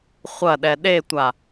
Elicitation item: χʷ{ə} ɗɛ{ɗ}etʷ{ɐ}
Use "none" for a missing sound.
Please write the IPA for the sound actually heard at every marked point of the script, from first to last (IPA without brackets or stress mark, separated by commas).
ɐ, ɗ, a